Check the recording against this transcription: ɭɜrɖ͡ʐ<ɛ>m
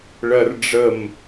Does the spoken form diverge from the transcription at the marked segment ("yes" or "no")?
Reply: yes